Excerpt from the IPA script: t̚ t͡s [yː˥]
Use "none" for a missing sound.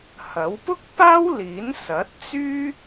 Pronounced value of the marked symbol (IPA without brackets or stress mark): yː˥